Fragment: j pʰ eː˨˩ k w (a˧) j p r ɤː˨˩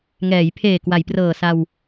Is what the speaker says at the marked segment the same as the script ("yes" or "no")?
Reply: no